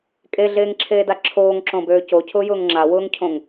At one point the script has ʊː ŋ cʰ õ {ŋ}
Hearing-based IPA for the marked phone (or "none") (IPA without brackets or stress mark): ŋ